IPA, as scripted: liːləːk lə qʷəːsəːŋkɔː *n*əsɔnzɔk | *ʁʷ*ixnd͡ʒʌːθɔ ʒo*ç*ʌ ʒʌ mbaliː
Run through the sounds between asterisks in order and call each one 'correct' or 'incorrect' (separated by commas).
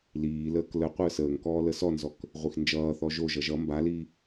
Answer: incorrect, correct, incorrect